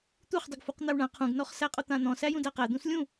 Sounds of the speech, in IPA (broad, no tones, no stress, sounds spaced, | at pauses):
t̪ u χ dˤ ʊ ɡ f u q n̪ a w ɳ ã qʰ ũ ɡ n ɔ χ s æ qʼ ʊ t̪ ã n̪ ɔ̃ s æ j ũ d æ q æ d̪ ũ s lʲ ũ